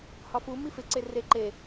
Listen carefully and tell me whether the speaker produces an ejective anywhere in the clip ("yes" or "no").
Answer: no